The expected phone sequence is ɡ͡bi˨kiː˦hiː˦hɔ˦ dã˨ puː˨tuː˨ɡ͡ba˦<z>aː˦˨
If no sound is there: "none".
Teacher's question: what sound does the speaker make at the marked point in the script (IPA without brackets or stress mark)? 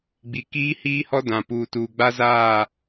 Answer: z